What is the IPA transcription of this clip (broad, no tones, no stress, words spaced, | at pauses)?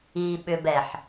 iɓʏbɛħ